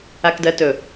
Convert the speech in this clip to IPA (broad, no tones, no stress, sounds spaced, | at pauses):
a k d ɜ t ɵ